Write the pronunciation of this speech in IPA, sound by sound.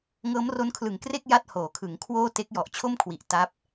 ŋ ɤː˦˥ m r o˦˥ n kʰ l ɯ˨˩ ŋ k r e˥˩ k̚ j a˥˩ t̚ h oː˩˦ kʰ ɯ˩˦ ŋ kʰ w oː˥˩ t e˦˥ k̚ j ɔ˨˩ ʔ t͡ɕʰ o˥˩ m kʰ w i˨˩ ʔ t a˦˥ p̚

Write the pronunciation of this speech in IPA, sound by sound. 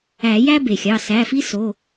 æ˨˩˦ j æ˦ b e˩ xʲ ɑ˩˧˩ s æ˩˧˩ f i˦ s o˩˧˩

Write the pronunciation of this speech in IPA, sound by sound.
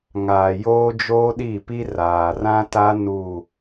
ŋ aː˨ j oː˦ d͡ʒ oː˦ ɗ i˦˨ p i˦ r aː˨ r ã˦ t a˦ n u˦˨

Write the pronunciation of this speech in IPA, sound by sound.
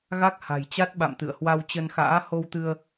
ɣ a˦˥ k̚ h a̤˨˩ j t͡ɕ a˦˥ t̚ ɓ a̰˧˨ m t̪ ɨ̰˧˨ ə̯ h w a˧ w t͡ɕ ə˧ n x a̰ː˧˥ h o˧ w t̪ ɨ˧ ə̯

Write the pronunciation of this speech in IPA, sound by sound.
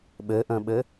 ɓ ɘ ʔ ə̃ ɓ ɘ

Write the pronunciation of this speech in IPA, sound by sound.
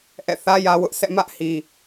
ʔ ɛ̰˦˨ θ ä˦ j ä˦ w ʊ˦ ʔ s ɛ̰˦˨ m ä˦ ʔ h i˨

